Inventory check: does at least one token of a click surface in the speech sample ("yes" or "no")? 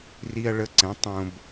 yes